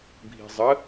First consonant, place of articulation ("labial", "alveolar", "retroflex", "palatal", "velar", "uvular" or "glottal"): labial